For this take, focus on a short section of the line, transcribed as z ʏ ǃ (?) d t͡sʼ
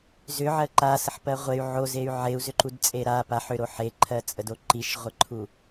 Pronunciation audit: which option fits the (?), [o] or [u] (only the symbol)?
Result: u